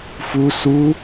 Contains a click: no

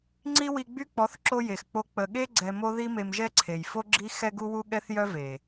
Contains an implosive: yes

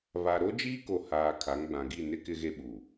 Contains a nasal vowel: yes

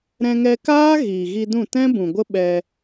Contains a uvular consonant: no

